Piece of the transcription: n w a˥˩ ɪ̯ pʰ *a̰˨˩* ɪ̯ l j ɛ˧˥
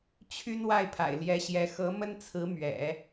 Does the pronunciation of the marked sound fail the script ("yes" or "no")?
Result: no